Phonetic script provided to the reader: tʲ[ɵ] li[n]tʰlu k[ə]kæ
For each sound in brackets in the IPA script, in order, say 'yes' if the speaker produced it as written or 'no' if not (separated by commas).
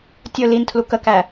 yes, yes, yes